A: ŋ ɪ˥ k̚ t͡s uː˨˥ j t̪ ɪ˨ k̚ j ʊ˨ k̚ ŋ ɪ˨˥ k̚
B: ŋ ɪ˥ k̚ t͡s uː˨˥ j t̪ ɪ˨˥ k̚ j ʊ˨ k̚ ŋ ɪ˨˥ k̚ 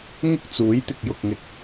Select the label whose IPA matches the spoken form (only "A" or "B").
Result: A